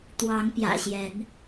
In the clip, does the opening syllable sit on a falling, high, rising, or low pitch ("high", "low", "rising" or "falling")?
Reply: rising